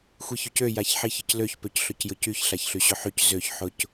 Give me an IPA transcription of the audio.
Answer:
xʷiçøcø jaçħiçɪcløç pøcɬʊcjʊcyç ɬaçɬyɕʊħyc zøç ħʊc

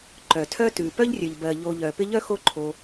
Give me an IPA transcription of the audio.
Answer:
ǃœ˩tʰœ˦ tʉ˩ pœ˥ʎrʲœ˩ʎbɜ˩ ʎo˨ʎœ˩ pɪ˦ʎœ˥xo˦ǃʰo˨

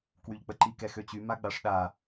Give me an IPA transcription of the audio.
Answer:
kwyʎk͡pəǃi kɛxøt͡ɕy maɡ͡baʂɗa

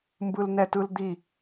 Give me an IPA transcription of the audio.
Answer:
mbɯlnɛtɯld̪i

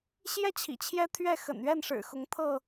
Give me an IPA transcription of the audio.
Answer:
ɕjɛ˥˨ t͡ɕʰḭ˨˩t͡ɕʰjɛ˦ t̪ʰɥɛ˥˨xə̰˨˩nɥɛ˥˨nʂɻ̩˨˩ xʊ˨˦ŋt̪ʰɤ˥˨

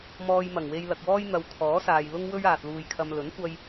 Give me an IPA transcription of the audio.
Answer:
mɔː˧jmɐ˨˩ŋwe˧j lɐ˨k̚wɔː˥jn̪ɐ˨˧w kʰɔː˨˥saː˨j lʊ˥ŋwɵ˥ɥ aː˨t̚luː˧jkʰɐ˧m lɵ˨˥nkʷɐ˧j

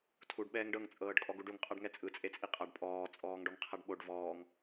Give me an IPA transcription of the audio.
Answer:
tʰuɖ ɓɛːŋɖɤŋ t͡sʼɤːɖkʼɔɡuɖuŋ qʼaɖŋɛt͡sʼɯ t͡sʼet͡sʼiqʼaɖ pʼɔː t͡sʼɔːŋɖɔŋqʰaɖɓoɖ vɔːŋ

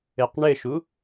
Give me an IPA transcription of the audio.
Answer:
ɘqɳɘʃu

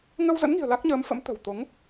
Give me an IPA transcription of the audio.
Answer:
ŋə˧wzə̰˧˥nŋi̤˨˩ə̯ la˦˥k̚ɲəː˨˦mfə̰˧˥m t̪ə̤˨˩wt̪o˨˦ŋ

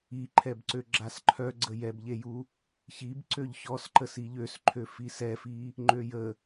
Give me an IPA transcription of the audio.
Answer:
iǃʰɛbǀø ɡ͡ǁasǃʰœɡ͡ǀə jɛbʎeju | çib ǀøʎçɔsǃəs iʎøsǃʰø fisɛfi | ŋ͡ǃøjə

